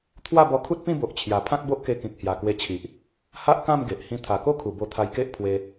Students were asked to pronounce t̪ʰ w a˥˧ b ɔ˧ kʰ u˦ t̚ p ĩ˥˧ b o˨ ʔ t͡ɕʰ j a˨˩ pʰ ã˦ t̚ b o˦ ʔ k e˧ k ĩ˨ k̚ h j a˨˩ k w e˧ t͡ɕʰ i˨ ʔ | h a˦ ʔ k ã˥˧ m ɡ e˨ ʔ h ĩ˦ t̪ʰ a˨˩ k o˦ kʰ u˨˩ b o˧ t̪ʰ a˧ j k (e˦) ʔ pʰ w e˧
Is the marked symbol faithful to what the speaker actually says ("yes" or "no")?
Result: yes